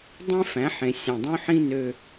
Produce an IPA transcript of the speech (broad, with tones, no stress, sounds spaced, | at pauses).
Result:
dˤ ẽ˦ f æ̃˨˦ ħ ẽ˨ sʲ æ̃˨ dˤ õ˦ ħ ĩ˦ n ø˦